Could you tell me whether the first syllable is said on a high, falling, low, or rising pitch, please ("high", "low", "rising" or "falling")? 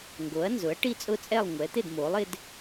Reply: rising